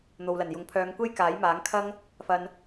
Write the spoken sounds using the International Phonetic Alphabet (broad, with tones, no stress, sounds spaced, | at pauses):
n̪ o˨ w l ɐ˨˩ n j ʊ˨˥ ŋ pʰ œː˨˧ ŋ kʷ e˥ j k aː˨˥ j m aː˨˥ ŋ kʰ ɐ˥ ŋ | f ɐ˨ n